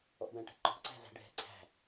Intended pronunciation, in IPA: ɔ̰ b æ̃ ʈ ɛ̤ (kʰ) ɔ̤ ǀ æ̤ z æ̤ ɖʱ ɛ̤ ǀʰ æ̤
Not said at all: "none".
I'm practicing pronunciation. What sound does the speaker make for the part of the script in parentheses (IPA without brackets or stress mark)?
ǃ